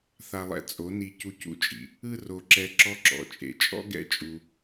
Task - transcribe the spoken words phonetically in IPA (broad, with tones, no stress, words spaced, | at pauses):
θa˧lˠɛ̰˧ t͡sʼo˨˦ni˧ cu˧cṵ˧t͡ʃʼḭ˨ | ɯ˦ro˧ ǁɛ˧ ǁɔ˦ǁɔ̰˨˦t͡ʃʼḛ˨˦ t͡ʃʼɔ̰˦ ɡɛ̰˦t͡ʃʼu˧